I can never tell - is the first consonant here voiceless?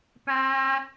yes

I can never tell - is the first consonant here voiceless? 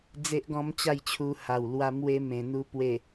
no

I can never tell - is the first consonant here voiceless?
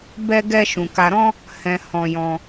no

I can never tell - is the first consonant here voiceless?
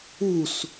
yes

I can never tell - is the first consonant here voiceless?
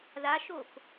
no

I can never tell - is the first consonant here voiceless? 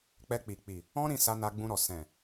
yes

